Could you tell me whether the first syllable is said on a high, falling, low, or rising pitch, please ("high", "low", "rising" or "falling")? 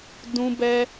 high